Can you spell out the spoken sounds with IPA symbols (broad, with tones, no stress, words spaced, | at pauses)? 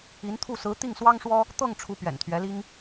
i˧˥nt̪ʰu˥˩ sɹ̩˧˥ t̪i˥˩ŋswɑ˥ŋʂwɔ˥ | t̪ɤ˥˩ŋ ʈ͡ʂʰu˧˥ pɥɛ̰˨˩nt̪ʰɥɛ˧˥li˥ŋ